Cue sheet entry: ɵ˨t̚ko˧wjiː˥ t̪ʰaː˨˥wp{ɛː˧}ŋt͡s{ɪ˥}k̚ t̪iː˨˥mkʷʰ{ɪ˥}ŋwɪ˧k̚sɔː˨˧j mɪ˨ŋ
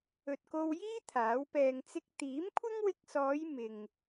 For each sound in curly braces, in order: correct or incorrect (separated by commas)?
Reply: correct, correct, correct